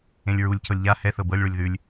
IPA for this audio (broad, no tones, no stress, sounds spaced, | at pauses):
ẽ lʲ ɹ u lʲ cʰ ɤ lʲ ʎ a h ɛ θ ɤ b ɤ lʲ ɭ u lʲ ð ʉ lʲ